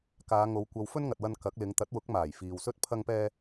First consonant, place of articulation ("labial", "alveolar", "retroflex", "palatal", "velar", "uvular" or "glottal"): velar